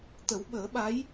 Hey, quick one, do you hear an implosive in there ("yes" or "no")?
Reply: yes